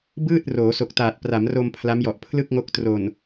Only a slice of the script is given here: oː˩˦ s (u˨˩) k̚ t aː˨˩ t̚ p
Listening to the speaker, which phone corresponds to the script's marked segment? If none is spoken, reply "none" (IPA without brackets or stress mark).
o˨˩